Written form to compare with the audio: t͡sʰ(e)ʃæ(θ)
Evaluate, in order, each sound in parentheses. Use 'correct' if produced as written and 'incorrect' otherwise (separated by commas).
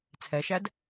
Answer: incorrect, incorrect